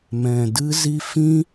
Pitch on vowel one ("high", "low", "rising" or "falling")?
low